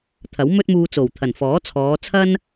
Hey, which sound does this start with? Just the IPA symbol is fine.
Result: t̪ʰ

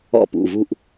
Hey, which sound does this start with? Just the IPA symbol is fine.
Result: ɔ̰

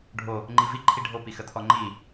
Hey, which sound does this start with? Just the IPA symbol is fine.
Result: ɖʱ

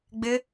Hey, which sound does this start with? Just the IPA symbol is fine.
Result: ɡ͡b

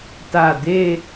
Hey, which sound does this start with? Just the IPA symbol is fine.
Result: t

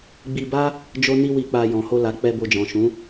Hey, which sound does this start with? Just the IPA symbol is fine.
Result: ɡ͡b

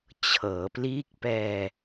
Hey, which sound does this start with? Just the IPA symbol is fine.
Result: t͡ɕʰ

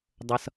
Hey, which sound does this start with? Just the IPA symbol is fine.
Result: dˤ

